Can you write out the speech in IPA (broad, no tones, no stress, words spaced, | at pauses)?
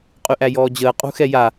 qʼyʔæjɔːd͡ʑəː qʼṳxɛja